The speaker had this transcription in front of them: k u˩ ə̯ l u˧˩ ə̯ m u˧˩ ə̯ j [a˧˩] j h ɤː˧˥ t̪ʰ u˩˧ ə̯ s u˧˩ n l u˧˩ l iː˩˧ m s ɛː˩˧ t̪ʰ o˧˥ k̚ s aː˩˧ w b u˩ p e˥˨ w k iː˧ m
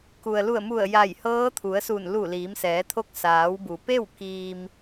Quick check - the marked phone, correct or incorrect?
correct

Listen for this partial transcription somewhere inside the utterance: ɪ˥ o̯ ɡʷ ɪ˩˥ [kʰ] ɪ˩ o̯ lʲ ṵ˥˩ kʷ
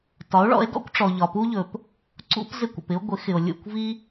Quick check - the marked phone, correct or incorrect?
incorrect: x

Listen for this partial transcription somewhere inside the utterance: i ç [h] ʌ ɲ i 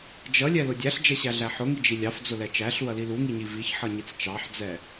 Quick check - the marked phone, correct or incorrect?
incorrect: ħ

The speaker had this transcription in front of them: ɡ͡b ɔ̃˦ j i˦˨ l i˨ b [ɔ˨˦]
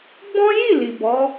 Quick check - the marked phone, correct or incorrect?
correct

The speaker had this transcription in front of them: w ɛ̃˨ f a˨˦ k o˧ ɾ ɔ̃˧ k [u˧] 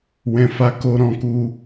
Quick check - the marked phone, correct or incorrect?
correct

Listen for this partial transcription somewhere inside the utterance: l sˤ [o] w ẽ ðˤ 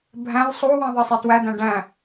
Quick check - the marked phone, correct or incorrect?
correct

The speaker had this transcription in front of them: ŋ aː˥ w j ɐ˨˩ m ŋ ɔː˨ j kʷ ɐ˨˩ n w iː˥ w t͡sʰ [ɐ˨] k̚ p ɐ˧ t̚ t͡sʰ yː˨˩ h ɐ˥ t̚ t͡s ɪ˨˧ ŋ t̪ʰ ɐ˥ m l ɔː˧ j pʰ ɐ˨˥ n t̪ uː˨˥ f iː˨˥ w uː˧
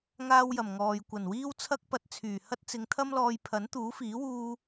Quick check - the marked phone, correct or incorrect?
incorrect: ɐ˥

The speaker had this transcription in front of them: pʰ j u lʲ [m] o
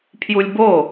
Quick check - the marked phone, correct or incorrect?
incorrect: b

